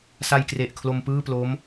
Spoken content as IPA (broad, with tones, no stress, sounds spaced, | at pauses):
s a˧ j k r e˨˩ ʔ kʰ l o˧ m p ɯː˥˩ p l o˦˥ m